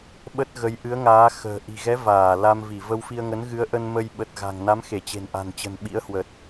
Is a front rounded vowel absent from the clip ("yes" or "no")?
yes